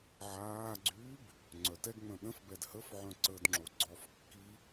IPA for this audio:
ʕ aː ɡ͡ǀ yː b | ŋ͡ǀ œ t ɛ ɡ ŋ͡m œ̃ ɗ ə̃ f b ɛ d h ə f ʕ œ̃ ǀ əː d ŋ͡ǁ o ɡ͡ǀ ɔ f kː i

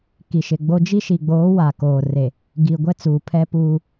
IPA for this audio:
k i˨ ʃ ɪ˨ ɡ͡b o˦ d͡ʒ i˦ ʃ i˨ ɡ͡b oː˨˦ w a˨ k oː˨ r e˨ | ɡ i˨ ɡʷ ɛ˦ t͡s uː˨ pʰ ɛ˦ p uː˦

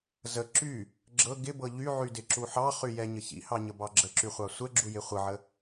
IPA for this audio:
z ə ǁ y | ɡ͡ǁ ɤ ɡ ɪ b ɤ ʎ y ʕ y d ɪ ǁ u ħ ɑ χ y j ɛ ɲ ə ç ḭ h ɑ ɲ ə b ɑ ɡ͡ǁ ə ǁ y χʷ ɑ sʷ ɛ ɡ͡ǁ u j ɪ χʷ ə ʕ ə

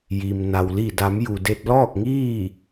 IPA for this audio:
j i˩ m n a˩ w l i˧˩ d a˩˧ m j u˩ d e˧ t̚ l ɔː˥˨ k̚ ŋ iː˥˨

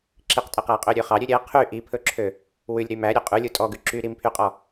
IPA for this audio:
ǁ i q tʼ ɛ q æ qʼ ø ɾʲ ø χ ɑ ɾʲ ø ɾʲ ɛ qʰ y ʔ i pʰ ɵ ǁʰ ø | w ʉ lʲ ɾ y m æ ɾʲ ɵ qʼ ʉ lʲ u tʼ ɔ ɡ ʉ ǁ y ɾ i m pʰ y qʼ ɔ

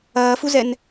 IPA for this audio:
ɐː f u z ɛ n

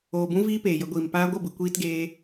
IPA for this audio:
oː˨ b ũ˧ v iː˦ p eː˨ j ə˨˦ ɡʷ iː˨ m p aː˧ ɡʷ ə˦˨ b ɨ˨ kʷ iː˦ t ɡ eː˦

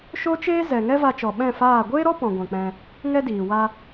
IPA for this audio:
ʃ o˦ t͡ʃ eː˦ z ɛ˨ ŋ ɛ˦ v a˧ t͡ʃ ɔ˨ ɓ ɛ̃˦˨ f aː˦˨ ɡʷ eː˦ ɾ ɔ˦ p ɔ̃˨ ɡʷ ɛ̃˨ k͡p ɛ̃˧ | ŋ ɛ˦ d iː˨ w a˧

